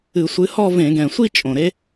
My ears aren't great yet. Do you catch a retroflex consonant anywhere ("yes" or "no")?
no